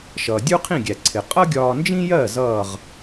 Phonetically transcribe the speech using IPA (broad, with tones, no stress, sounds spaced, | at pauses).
ʃ ʌː˩ dʲ u˥ qʰ ĩ˥˩ ɡʲ æ˩ ǀʰ ɪ˩ qʼ ʌ˥ ɡʲ ɒː˧ n d͡ʒ ĩ˥ j ɜ˥˩ z ʌː˥˩ ʁ